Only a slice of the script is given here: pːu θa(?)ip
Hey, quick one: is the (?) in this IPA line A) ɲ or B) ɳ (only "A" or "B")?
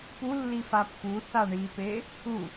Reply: B